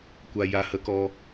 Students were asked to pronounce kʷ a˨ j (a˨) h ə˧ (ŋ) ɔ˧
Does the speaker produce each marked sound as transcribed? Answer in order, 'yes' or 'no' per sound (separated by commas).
yes, no